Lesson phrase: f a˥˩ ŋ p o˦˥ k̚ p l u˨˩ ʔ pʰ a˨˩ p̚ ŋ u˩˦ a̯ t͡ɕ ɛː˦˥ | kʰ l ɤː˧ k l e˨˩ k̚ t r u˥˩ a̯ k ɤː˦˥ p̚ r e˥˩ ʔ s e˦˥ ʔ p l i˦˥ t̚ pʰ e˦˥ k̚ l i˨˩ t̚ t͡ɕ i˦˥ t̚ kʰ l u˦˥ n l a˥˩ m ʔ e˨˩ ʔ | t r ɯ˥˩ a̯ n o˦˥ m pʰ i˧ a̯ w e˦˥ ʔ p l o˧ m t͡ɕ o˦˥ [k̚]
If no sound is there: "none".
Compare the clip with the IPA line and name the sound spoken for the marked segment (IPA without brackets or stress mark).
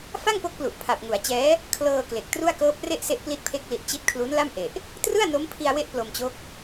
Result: k̚